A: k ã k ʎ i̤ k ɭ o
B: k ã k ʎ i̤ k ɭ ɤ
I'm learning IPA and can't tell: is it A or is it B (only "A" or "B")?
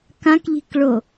A